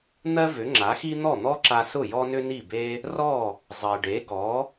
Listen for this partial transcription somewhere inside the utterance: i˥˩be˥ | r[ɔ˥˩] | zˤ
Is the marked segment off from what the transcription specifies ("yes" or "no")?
no